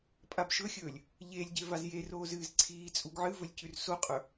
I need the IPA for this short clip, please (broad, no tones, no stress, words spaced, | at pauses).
pʼabʃɵxʲɵːlʲ | ʎelʲɟe vazjeroːz ɨːzǀʰiːt͡sʼuɡ ʕɨvɵlʲ cʉrsoqʼɵ